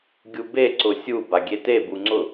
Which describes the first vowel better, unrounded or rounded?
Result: rounded